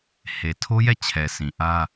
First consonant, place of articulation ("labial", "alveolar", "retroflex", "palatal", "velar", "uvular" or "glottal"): glottal